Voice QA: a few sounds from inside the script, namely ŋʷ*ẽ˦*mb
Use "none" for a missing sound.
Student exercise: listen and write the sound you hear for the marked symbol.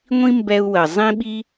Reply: ĩ˦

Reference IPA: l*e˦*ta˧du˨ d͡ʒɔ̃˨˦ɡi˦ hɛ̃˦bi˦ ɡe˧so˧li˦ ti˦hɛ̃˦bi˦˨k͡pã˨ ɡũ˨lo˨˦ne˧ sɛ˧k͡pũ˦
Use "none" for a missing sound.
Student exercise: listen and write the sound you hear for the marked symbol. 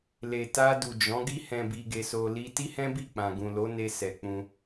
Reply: e˨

